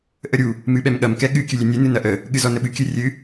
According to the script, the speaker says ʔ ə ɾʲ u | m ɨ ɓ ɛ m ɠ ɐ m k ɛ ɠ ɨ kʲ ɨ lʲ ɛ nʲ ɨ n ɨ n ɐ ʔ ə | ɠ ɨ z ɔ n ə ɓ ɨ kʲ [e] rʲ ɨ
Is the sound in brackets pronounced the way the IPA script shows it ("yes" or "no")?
no